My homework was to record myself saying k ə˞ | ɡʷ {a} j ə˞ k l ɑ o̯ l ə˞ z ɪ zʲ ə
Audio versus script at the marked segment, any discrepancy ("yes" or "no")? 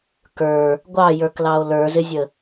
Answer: yes